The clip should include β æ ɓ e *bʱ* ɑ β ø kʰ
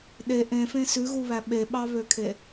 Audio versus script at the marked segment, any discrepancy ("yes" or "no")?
yes